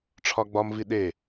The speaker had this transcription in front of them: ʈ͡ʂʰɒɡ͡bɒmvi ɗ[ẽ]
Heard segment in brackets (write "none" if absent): e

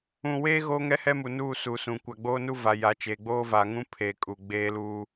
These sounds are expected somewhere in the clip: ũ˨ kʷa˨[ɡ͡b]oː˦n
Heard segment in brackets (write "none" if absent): ɡ͡b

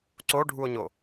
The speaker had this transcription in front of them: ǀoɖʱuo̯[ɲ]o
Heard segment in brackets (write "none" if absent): ɲ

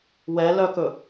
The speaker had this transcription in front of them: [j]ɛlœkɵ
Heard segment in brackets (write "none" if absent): w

